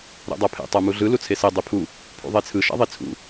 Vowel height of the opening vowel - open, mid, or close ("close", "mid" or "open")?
mid